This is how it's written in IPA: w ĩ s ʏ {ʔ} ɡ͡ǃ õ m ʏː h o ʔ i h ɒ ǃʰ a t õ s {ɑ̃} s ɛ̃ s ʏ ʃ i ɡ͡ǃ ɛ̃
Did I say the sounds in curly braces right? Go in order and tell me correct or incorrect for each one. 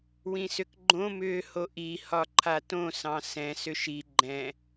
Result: incorrect, correct

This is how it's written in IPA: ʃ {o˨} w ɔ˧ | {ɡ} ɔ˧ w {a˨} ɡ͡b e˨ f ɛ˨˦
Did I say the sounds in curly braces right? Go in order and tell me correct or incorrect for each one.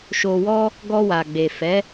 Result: correct, correct, correct

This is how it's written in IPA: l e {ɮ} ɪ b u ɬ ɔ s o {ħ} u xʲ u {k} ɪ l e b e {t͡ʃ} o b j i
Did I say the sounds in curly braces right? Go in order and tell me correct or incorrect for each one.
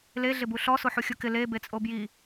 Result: correct, correct, correct, incorrect

